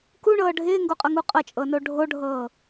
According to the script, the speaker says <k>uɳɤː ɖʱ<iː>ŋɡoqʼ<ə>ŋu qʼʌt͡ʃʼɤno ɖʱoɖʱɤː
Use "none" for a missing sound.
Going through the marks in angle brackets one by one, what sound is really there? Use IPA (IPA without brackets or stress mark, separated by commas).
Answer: k, ɪː, ʌ